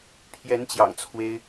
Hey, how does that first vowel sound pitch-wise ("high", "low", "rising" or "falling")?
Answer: rising